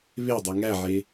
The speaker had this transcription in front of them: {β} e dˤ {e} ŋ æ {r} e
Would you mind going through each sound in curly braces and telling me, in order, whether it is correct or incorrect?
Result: correct, correct, incorrect: ʕ

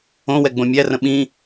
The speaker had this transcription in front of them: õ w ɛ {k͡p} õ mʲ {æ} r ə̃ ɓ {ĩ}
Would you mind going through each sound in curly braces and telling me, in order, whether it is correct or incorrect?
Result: incorrect: ɡ͡b, correct, correct

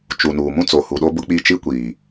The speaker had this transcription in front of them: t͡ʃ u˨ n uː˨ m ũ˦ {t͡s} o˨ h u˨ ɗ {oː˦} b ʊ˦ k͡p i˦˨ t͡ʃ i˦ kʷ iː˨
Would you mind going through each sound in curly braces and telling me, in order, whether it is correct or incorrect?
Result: correct, incorrect: o˦

